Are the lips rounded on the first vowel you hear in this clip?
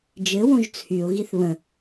no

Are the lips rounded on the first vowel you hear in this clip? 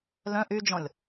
yes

